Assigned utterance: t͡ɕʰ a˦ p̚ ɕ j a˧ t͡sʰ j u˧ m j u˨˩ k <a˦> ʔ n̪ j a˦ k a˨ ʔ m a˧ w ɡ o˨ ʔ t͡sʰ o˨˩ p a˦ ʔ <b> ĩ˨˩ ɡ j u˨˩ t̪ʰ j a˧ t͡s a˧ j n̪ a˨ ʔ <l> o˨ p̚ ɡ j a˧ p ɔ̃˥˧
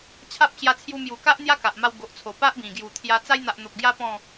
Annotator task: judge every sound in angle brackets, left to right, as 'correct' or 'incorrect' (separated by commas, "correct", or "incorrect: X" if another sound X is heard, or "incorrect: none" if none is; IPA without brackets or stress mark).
correct, correct, incorrect: n̪